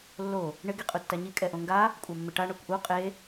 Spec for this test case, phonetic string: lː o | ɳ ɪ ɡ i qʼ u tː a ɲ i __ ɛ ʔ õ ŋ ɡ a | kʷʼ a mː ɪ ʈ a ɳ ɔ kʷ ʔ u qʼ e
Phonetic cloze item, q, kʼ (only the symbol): kʼ